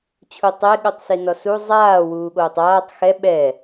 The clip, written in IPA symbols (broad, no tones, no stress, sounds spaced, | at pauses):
t͡ɕʰ u tˤ e ɠ u tˤ s i n ɔ s u zˤ aː w uː ɠ oː tˤ aː tˤ x ɛ ɓ ɛ